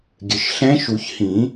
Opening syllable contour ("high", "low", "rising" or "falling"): low